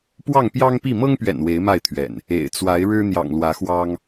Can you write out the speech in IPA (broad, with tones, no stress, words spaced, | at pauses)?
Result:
pwɑ˥˨ŋpjɑ˦ŋpi˥˨ mɤ˦ŋpɥɛ̰˨˩n we˨˦ɪ̯ma˥˨ɪ̯t̪ʰɥɛ̰˨˩n | ḛ˨˩ɪ̯t͡swa˨˦ɪ̯ɻɻ̩˦ n̪jɑ̰˨˩ŋlwä˨˦xwɑ˦ŋ